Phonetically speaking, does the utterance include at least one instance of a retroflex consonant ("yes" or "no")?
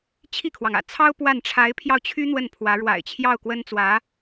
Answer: yes